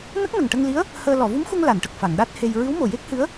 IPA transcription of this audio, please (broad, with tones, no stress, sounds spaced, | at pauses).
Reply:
n ə˦˥ k̚ n ə˨˩ ŋ ʈ ə˧ ŋ l i˧˥ ə̯ | h əː˧ l ɔ˨˩˨ v u˧˥ m x u˧ ŋ l a˨˩˨ n ʈ ə˨˩ k̚ f a˨˩˨ ŋ ɗ a˦˥ t̚ h e˧ j ɹ ɨ˧˥ w m o˨˩ j e˦˥ k̚ h ɨ˧˥ ə̯